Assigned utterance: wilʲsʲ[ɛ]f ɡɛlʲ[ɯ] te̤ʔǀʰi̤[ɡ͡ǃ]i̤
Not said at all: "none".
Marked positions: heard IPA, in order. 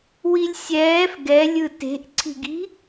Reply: ɛː, ɯ, ɡ

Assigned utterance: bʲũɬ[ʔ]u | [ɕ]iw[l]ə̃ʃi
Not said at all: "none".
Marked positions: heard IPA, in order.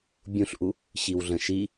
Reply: ʔ, ɕ, ɮ

